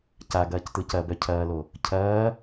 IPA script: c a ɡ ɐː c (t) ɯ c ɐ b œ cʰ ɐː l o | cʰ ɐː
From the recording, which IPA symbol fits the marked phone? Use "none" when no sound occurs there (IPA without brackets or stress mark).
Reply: t